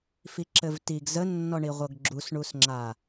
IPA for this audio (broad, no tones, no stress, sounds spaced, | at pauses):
f i ǁ ɘ v t i ɡ z ə nː ɔ ɳ i ʁʷ ɤ ɡ ɡ͡ǁ u s ɳ u s ŋ͡ǁ a